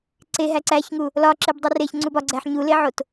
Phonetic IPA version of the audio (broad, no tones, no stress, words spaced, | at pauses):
ǀeɦæ ǀæçŋu | lɒǁebdˤi reçŋ͡ǀub ɒɡ͡ǀæħ ɲuleʕot